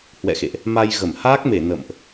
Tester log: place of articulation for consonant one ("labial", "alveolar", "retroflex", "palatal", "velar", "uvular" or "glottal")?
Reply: glottal